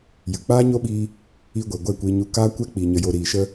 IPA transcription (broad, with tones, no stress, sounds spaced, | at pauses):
j ɨ˨ k͡p aː˦ ɲ o˦ ɓ iː˧ | i˧ ɡʷ e˨ ɡʷ ɛ˦˨ kʷ iː˧ ɲ u˧ k aː˦ kʷ ɛ˦ k͡p i˨ ɲ ə˧ j o˧ ɾ iː˨ ʃ ə˧